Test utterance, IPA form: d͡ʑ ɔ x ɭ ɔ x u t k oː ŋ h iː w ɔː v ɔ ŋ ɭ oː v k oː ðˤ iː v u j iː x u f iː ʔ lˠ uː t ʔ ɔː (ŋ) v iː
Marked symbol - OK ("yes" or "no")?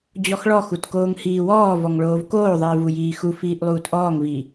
yes